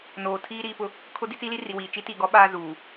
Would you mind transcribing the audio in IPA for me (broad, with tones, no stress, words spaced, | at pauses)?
noː˨tʰiː˦ ɾiː˨pʊ˦ | kʰʊ˦di˦t͡siː˦li˦ ri˨wiː˨ t͡ʃi˦ti˦˨ ɡɔ˦ ɓaː˦ zuː˨